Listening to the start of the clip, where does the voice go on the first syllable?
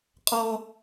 high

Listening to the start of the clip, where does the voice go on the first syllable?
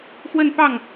falling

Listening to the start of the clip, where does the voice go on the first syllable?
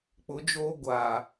rising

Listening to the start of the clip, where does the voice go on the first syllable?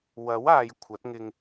rising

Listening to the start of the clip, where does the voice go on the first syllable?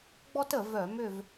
high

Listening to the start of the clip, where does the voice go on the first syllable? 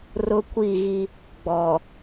high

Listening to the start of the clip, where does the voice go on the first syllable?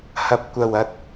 low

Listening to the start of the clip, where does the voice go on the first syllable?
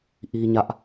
high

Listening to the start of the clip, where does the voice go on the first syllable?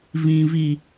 low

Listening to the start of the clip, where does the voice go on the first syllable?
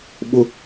high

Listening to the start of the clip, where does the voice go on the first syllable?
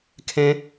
high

